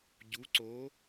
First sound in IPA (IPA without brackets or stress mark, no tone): ɟ